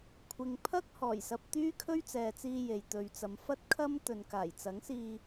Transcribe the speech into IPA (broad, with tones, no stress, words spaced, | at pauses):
kʷʰɪ˨ŋpʰɐ˥k̚ hɔː˨˩jsɐ˧p̚ t̪yː˥kʰɵ˥ɥt͡sɛː˨t͡siː˧ je˨jt̪ɵ˨ɥt͡sɐ˨˧m fɐ˥t̚kʰɐ˥m t̪ɵ˨nkaː˨˩jt͡sɐ˨˥ŋsiː˧